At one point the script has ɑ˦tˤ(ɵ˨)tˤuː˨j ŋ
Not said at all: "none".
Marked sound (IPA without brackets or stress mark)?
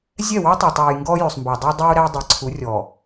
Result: ɵ˨